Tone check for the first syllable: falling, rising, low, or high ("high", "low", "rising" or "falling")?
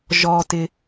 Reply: high